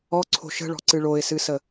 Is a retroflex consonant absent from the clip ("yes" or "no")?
no